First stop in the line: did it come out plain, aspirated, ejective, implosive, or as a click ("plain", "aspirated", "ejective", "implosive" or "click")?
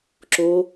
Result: click